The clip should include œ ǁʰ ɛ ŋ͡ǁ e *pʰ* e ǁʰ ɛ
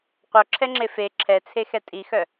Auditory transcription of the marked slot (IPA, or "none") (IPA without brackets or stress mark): f